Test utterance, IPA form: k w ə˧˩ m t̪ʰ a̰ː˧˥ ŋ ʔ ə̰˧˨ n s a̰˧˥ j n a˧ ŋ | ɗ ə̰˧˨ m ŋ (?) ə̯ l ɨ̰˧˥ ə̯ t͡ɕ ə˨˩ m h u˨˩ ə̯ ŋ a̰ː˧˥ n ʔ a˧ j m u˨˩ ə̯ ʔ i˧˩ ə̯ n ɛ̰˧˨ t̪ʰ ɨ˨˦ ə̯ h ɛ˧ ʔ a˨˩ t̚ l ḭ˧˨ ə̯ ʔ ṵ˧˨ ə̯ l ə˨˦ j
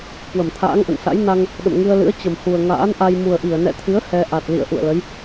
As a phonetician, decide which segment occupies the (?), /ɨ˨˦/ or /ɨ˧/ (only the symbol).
ɨ˧